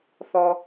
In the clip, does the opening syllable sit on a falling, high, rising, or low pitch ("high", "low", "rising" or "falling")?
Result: low